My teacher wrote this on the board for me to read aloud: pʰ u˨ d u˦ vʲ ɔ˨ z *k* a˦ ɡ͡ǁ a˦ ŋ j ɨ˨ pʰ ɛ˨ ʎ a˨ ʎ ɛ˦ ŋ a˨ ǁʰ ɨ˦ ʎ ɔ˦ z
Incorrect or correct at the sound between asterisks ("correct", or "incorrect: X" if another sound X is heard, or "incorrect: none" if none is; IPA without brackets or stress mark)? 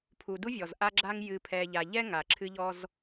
incorrect: ʔ